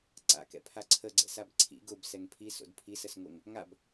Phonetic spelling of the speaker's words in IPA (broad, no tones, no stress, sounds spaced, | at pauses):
ǀ a̰ k ɛ̰ pʰ a ǀʰ ə ɡ͡ǀ ɛ̰ s a b ǀʰ ḭ ɡ ʊ b s ɛ ŋ pʰ i s o̰ d pʰ i s ə s ŋ o ŋ | ŋ a b